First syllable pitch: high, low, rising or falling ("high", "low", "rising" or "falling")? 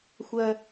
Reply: high